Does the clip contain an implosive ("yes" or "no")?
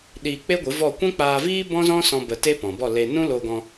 yes